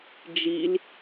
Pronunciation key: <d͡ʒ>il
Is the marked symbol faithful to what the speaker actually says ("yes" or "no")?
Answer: yes